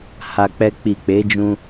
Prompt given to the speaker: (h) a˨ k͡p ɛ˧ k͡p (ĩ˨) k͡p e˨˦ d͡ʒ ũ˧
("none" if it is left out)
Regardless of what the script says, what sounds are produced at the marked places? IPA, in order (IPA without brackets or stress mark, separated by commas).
h, i˨